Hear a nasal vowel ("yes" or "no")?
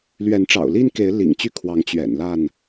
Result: no